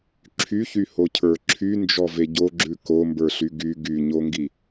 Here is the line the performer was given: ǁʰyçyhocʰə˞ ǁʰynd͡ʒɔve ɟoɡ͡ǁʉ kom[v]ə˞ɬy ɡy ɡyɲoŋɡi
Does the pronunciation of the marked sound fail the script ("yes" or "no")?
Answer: yes